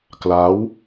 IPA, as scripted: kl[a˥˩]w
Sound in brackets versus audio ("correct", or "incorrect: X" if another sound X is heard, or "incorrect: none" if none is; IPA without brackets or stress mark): incorrect: a˦˥